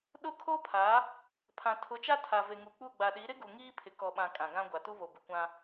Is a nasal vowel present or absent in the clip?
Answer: present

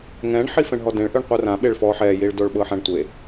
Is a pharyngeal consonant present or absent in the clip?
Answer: present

